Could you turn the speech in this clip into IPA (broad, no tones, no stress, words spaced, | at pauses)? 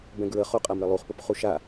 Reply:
bɛ̃ɡɹəχoqʼam ɾəlˠuχpop χuʃa